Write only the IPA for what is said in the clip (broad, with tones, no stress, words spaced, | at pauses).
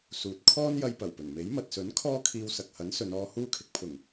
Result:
suː˨t̚ kʰɔː˥njɐ˧jpɐ˨˩wpɵ˨˩n me˨˥jmɐ˨t̚sɵ˨˥n kʰɔː˥kʰiː˧w sɐ˨k̚hɐ˨˥nsɵ˨˧nɔː˧ huː˧kʰɪ˨k̚pʰʊ˨˩ŋ